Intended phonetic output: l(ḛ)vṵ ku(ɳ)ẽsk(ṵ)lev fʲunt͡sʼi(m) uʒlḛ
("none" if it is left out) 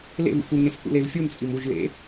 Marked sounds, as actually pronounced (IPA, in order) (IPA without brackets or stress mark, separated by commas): ḛ, ŋ, ṵ, m